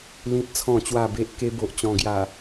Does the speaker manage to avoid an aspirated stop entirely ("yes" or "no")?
no